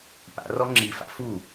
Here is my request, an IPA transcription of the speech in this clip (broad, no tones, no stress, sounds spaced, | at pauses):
p a̰ r ɔ ŋ͡ǁ i f a̰ f u